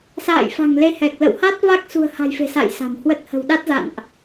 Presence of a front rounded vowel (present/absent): absent